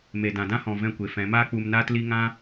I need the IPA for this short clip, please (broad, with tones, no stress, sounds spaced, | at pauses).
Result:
m e˨ d ã˨ d ã˦ h ɔ̃˨ v ɛ̃˧ kʷ e˨ f ɛ̃˨˦ m aː˦ k͡p u˧ m n aː˦ t l i˦ ŋ ã˦